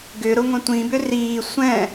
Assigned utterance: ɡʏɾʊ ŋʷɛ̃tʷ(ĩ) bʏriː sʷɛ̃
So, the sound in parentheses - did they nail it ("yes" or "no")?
yes